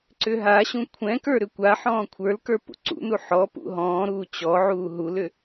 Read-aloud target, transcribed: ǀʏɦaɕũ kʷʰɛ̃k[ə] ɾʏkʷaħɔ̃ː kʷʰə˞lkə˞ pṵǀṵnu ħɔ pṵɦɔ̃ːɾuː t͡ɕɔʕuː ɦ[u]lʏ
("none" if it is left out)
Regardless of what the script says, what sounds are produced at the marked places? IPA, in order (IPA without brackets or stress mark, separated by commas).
ə˞, u